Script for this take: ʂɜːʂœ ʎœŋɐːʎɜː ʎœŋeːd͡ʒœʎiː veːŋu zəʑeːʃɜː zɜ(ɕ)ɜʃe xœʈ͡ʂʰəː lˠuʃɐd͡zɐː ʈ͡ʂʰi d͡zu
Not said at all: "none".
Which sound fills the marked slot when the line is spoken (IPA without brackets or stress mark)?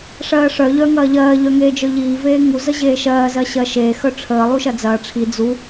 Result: ɕ